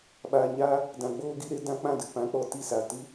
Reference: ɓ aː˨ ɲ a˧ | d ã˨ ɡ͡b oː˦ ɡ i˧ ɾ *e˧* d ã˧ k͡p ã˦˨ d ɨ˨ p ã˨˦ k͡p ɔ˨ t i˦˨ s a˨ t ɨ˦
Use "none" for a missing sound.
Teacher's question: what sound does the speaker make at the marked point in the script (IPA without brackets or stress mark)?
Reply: e˦